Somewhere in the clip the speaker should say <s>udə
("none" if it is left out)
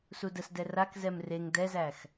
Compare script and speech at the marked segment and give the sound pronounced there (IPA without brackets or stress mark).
s